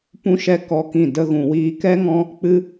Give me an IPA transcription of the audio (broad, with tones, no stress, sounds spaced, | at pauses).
p ũ˦ ʃ ɛ˦ k ɔ˦ k ĩ˦˨ d ə˦ ɣ ũ˧ w iː˦ k ɛ˦ ŋ ɔ̃˦ | k͡p ɨ˦